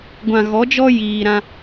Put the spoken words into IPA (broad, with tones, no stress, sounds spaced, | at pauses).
ɡʷ ã˨ ɣ ɔ˨˦ d͡ʒ ɔ˦ j iː˨ ɾ ã˦